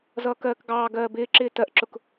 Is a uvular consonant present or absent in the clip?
absent